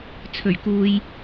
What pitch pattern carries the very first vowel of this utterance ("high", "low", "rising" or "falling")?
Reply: low